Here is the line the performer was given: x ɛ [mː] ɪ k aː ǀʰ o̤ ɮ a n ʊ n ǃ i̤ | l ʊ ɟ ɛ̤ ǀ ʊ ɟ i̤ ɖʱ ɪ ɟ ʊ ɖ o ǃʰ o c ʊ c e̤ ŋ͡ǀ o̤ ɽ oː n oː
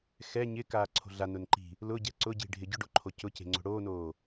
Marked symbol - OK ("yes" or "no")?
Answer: no